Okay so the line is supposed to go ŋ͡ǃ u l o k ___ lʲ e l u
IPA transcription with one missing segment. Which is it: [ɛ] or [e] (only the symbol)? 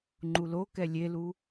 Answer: ɛ